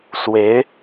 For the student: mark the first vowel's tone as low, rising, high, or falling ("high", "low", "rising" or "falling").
rising